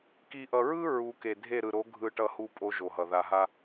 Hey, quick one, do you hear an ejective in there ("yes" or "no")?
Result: yes